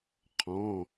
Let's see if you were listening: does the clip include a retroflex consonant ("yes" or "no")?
no